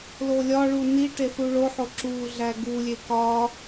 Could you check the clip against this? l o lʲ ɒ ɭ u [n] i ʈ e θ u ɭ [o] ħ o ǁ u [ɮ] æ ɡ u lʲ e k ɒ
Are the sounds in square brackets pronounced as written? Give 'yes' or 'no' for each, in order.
yes, yes, yes

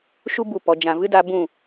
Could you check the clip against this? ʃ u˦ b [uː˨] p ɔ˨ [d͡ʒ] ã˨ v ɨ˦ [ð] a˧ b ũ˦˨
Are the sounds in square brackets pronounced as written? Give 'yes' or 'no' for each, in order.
no, yes, no

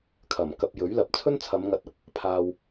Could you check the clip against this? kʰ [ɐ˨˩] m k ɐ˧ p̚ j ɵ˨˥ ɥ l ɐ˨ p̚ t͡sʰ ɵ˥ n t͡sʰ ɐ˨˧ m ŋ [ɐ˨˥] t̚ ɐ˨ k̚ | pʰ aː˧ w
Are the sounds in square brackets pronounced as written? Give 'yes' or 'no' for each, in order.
yes, yes

